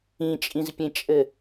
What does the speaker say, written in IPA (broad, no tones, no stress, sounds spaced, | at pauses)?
ĩ t͡ʃʼ ĩ z pʲ ẽ t͡ʃʼ ɘ